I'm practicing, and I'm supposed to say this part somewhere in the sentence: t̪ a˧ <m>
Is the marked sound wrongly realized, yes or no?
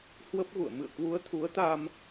no